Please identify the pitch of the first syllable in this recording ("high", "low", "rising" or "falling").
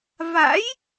rising